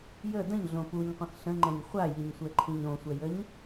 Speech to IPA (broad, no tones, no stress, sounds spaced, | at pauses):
j ə d ə̃ ɲ ɮ õ p u ɲ qʷ ə̃ x ɬ ə̃ ŋ͡ǃ ɛ̃ ɲ χʷ a j i ɲ sʷ ɛ ǃʰ ĩ ɲ õ sʷ ɛ j ə ɲ